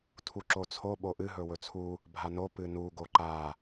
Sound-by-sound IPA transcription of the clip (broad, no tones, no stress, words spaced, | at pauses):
tʰuǁot͡sʰo ɓoʔɨ ɦɵwɵt͡sʰu | bʱano pɨnu ɡoǃa